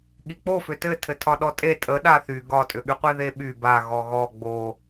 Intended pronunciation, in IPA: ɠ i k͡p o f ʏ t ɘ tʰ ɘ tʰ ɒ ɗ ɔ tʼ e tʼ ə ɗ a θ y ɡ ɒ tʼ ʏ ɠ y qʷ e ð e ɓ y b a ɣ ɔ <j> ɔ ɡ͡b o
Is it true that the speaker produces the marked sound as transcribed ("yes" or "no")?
no